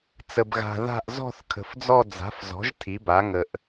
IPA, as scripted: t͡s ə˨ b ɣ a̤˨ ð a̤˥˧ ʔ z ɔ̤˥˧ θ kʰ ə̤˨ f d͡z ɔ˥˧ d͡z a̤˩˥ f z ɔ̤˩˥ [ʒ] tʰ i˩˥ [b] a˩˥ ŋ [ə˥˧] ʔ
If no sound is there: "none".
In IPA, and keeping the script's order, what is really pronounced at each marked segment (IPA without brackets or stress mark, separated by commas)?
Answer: ʒ, b, ə˨